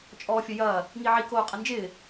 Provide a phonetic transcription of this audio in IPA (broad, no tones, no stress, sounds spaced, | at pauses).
t͡ʃʼ ɔː fʲ ə j ɐː | ŋ i ʕ i k oː qʼ ə n d͡ʒ ɪː